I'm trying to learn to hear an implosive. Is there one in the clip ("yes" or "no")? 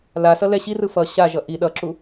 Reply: yes